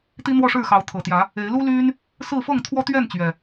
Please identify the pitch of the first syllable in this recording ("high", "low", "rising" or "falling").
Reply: high